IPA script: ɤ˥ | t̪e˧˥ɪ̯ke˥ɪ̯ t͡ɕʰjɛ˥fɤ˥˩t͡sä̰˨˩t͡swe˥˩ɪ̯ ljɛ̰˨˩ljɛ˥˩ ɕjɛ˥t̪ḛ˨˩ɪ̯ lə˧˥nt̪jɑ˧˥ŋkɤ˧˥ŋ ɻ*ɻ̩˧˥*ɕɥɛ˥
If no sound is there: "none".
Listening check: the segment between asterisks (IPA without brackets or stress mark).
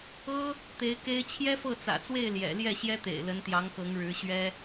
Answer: ɻ̩˧˥